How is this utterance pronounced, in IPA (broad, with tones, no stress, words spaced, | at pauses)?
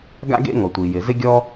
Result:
ɡa̰˥ɡḛ˥ŋɔ˩ tʷi˩jɪ˩zɪ˥ɡʲɔ˥